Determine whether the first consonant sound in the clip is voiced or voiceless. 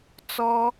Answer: voiceless